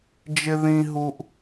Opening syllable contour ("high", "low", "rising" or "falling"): high